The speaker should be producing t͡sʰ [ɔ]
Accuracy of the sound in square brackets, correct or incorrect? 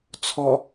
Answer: correct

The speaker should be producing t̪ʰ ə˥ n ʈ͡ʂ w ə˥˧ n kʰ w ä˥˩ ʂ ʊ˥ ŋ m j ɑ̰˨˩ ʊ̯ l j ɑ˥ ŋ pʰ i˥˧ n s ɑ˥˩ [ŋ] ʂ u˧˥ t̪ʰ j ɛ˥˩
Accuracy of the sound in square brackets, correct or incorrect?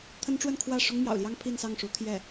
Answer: correct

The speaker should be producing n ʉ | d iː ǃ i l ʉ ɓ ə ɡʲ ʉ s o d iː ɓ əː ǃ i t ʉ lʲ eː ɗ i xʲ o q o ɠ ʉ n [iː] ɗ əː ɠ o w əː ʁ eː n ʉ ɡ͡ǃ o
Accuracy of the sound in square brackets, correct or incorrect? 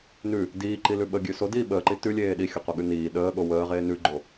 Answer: correct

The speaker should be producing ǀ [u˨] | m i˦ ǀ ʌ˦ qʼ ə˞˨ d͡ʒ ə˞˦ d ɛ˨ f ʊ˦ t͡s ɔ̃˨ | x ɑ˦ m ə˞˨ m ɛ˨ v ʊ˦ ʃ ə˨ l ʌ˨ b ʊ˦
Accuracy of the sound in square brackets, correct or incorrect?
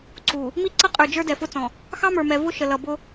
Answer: correct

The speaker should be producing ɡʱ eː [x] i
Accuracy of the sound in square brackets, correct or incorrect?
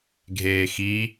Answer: correct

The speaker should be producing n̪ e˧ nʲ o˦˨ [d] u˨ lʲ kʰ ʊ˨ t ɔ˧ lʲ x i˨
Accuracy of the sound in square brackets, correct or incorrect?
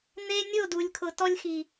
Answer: correct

